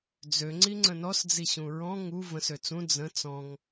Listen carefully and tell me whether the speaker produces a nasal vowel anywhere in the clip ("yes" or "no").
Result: yes